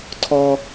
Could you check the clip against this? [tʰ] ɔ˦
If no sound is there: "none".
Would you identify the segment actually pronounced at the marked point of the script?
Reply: tʰ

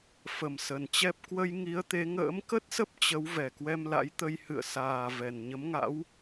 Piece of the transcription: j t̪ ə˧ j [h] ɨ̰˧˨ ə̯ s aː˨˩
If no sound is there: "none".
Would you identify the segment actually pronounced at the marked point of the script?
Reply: h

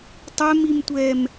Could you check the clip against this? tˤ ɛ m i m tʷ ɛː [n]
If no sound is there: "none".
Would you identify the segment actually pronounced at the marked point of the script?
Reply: m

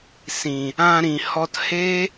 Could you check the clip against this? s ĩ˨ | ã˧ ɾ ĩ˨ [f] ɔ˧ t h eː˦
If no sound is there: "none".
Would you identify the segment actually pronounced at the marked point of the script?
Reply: h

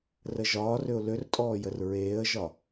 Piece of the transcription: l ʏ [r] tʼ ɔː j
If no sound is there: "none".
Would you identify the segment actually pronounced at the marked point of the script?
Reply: r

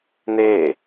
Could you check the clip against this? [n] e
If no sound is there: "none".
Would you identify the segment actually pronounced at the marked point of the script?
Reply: n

